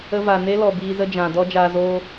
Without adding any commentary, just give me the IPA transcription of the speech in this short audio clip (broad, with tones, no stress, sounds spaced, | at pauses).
ə˧ v a˨ n e˦ l ɔ˨ b iː˧ z ə˦ d͡ʒ ã˨ d ɔ˦ d͡ʒ aː˧ z oː˦